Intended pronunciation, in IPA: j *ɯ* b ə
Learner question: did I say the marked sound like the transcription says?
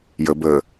no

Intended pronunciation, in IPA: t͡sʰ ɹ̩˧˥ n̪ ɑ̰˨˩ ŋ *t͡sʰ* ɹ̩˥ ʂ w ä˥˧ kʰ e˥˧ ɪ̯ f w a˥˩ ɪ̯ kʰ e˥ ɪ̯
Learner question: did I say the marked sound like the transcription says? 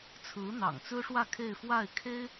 no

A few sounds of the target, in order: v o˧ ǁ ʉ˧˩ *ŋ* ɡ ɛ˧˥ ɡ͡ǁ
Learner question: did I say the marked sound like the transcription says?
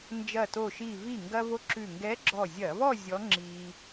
yes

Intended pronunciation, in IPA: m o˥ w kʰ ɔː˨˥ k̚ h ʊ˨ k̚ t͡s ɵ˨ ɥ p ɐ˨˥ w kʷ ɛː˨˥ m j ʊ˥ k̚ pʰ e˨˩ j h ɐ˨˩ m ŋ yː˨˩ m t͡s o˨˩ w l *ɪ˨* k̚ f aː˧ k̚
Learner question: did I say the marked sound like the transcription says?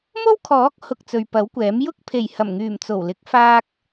no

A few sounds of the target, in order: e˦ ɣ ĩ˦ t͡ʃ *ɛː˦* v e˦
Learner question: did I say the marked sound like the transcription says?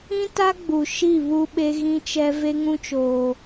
no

